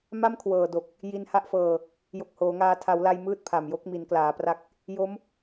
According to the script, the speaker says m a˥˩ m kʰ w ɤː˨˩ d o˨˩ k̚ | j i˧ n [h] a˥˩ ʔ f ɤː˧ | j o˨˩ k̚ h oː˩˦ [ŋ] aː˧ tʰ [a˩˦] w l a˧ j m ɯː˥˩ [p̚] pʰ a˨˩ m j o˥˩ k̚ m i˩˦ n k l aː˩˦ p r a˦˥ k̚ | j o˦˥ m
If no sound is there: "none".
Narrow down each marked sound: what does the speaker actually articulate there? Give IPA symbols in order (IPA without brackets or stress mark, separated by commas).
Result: h, ŋ, a˩˦, t̚